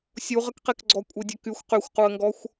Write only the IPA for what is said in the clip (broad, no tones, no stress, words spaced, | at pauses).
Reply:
sʲuʁəkqekɡ͡ǀɔ kʷʼedʲəkyxʷ qyxʷquə̯ŋɡɔxʷ